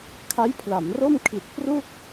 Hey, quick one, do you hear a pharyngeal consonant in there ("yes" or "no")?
no